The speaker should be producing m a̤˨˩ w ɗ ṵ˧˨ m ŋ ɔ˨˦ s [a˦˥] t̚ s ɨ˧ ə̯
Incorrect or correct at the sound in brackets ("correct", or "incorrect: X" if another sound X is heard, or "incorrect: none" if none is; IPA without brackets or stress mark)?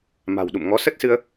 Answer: incorrect: ə˦˥